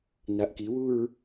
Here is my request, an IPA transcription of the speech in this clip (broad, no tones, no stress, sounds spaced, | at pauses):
n a ʔ k i w u ɹ